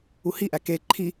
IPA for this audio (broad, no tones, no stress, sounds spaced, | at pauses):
u h i ʔ æ k e ǃʰ i